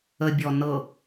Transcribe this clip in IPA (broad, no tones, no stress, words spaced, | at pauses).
əbʲɔ nɤ